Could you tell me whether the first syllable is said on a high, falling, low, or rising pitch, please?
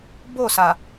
falling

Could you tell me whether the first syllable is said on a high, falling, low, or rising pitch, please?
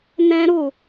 high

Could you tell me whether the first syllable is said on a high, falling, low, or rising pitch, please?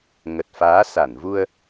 low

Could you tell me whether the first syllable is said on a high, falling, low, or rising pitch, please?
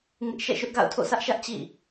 high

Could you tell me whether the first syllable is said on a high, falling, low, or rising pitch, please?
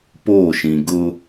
falling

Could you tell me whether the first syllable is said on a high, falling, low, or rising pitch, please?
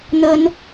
rising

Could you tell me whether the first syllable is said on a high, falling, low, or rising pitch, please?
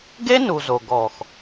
high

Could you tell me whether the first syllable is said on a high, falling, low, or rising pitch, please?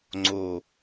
low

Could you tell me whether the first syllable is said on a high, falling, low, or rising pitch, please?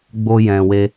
high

